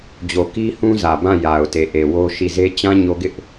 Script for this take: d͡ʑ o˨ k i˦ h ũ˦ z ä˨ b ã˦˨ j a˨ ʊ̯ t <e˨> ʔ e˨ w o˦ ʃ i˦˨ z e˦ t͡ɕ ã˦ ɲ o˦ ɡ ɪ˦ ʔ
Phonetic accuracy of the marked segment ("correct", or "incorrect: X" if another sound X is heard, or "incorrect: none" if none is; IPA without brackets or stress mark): correct